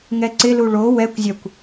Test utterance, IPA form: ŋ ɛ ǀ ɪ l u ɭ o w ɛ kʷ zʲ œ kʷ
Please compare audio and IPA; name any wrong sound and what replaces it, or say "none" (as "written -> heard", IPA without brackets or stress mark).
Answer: none